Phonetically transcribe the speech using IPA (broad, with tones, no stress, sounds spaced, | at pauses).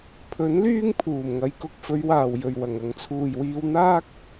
pʰ ɵ˨˥ n l yː˥ ŋ pʰ uː˨˩ m ŋ ɐ˨˧ j k ʊ˧ k̚ f ɵ˨˧ ɥ w aː˨˩ w j ɵ˨˩ ɥ w ɐ˨˩ ŋ ɐ˨ ŋ t͡sʰ uː˨˩ j w iː˧ w n̪ aː˥ k̚